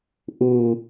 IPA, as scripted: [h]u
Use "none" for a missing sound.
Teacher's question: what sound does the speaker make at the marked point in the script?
ʔ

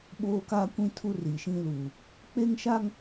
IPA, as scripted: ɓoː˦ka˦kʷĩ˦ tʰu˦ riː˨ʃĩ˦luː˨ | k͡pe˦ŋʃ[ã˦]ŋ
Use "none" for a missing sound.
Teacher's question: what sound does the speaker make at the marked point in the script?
a˦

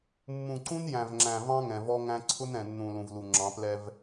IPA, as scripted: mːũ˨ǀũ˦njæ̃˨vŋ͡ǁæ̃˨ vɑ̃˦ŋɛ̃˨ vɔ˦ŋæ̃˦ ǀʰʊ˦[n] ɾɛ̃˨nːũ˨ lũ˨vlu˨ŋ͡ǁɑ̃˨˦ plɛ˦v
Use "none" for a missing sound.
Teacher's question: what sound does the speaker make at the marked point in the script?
n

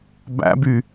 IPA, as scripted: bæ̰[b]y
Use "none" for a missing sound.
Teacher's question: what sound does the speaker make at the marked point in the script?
b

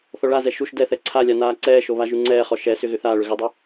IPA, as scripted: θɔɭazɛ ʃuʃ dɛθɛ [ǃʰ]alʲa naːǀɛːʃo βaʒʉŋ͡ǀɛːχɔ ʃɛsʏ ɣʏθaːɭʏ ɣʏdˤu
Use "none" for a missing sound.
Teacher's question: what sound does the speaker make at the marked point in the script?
ǀʰ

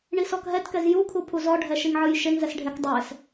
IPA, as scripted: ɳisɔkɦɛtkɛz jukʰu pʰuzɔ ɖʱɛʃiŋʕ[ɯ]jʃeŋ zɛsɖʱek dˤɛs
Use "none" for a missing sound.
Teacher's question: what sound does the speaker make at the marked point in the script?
ɯ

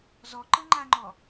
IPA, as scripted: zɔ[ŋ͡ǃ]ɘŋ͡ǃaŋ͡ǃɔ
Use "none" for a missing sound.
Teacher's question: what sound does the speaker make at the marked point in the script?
ǃ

